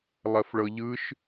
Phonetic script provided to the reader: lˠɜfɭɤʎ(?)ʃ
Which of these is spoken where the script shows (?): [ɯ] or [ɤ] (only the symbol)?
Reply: ɯ